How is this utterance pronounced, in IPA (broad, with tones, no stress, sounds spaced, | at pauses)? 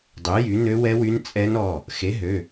dˤ ø˨˥ j y˨˥ n ø˦˥ w ɛ˦˥ w y˦˥ n t͡sʼ ɛ˦˥ n ɔ˩˧˩ | x e˨˥ ɦ ø˩˧˩